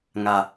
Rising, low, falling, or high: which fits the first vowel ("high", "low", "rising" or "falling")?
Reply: high